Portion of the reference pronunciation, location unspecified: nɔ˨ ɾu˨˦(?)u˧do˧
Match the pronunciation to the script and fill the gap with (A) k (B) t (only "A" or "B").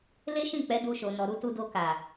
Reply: B